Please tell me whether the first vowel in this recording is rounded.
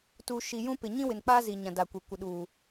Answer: yes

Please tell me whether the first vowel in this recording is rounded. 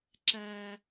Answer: no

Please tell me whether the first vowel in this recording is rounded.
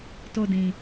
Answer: yes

